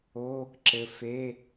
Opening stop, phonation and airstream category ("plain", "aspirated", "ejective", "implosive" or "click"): click